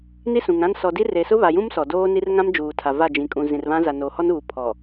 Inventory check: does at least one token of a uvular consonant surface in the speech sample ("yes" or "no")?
no